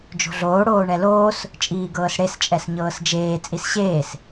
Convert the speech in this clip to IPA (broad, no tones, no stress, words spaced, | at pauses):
d͡ʒo̤ɮoː ɽoːɳɛloːs | t͡ʃʼiːɡɤːsɽes t͡ʃʼɛsɲɤːsd͡ʒeː t͡sʼisɕeːs